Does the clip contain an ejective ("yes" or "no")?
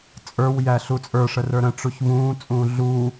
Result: yes